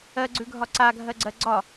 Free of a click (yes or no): no